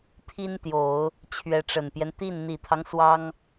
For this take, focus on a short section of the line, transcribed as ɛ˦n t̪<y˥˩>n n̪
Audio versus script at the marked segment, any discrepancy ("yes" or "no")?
yes